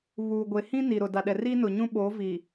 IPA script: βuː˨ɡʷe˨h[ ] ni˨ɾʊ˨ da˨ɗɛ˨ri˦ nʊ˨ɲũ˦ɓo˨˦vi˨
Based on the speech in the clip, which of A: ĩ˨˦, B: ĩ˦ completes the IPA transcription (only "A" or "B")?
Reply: B